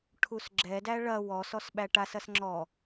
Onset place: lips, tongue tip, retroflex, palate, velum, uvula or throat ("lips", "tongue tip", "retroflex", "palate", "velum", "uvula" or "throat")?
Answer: retroflex